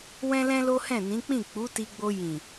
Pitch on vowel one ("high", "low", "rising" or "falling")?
high